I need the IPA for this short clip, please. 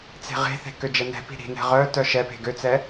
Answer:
t͡s e̤ ʁ e̤ θ e̤ k ø d͡ʒ ɛ n ɛ̤ p i̤ ɾ i̤ n ɛ̤ ʁ œ t œ ʃ ɛ p e̤ ɡ ø t͡s ɛ

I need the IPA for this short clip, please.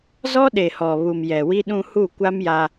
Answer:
z ɔ˦ ɗ e˨ h ɔ˨ β u˨ m j ɛ˨ w i˦ ɗ ũ˦ h u˦˨ kʷ a˦ m j a˦

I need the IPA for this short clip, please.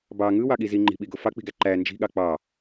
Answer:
b ɑ ŋ ɯ w ɑ ɠ i z i ŋ͡ǃ i̤ ɓ i ɡ o f ɑ k͡p i̤ ɡ æ ǃ æ n d͡ʒ i̤ ɠ ɑ k͡p ɑ

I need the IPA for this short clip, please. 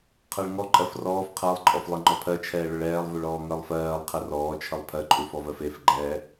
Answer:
qʰ ɜ ɭ ŋ ɔ ǃʼ ɜ f r ɔː f qʰ ɜ lˠ ǃʼ ɔ f lˠ e ŋ͡ǃ ɔ pʰ ɜ t͡ʃʰ ɛː ɭ ʊ ɭ ɛː lˠ v u ɭ ɔː ŋ ɜ lˠ f ɜː lˠ qʰ ɛ r ɔː t͡ʃʰ ə lˠ pʰ ɜ ǃʼ u f ɔ v ɜ f e f ɡ͡ǃ ɛː

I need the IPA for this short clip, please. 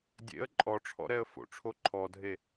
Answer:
dʲ ḛ ə̯ ǃʼ ɔ ʈ͡ʂʰ ɔ̰ ɾ ɛ ə̯ f o̰ ʈ͡ʂʰ o ǃʰ ɔ dʱ e

